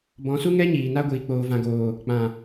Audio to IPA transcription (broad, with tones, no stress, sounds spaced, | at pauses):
b ɔ̃˨˦ s u˦ ŋ ɛ˦ ɲ iː˨ n a˧ ɡʷ iː˨ k͡p oː˨ v ã˨ ɡ oː˨ | k͡p ã˨